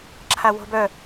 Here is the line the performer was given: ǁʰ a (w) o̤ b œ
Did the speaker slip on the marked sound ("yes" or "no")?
no